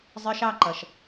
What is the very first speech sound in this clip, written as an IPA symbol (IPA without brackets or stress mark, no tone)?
zˤ